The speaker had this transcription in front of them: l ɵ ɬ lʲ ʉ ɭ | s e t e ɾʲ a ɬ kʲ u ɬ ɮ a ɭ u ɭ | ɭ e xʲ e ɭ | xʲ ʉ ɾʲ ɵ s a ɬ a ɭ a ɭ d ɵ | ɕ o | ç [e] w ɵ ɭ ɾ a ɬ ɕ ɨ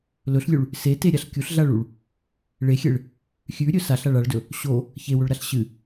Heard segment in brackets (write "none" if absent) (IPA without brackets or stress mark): e